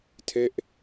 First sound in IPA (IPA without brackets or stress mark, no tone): tʰ